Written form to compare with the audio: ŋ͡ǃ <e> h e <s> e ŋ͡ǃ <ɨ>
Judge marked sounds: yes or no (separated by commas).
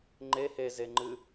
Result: yes, no, yes